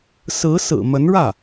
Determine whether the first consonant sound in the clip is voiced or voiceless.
voiceless